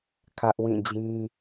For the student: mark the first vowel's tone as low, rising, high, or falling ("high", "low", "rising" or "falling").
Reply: high